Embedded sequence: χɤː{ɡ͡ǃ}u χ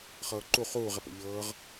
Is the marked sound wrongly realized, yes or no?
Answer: yes